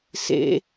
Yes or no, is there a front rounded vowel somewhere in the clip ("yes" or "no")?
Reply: no